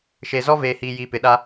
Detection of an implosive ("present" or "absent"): present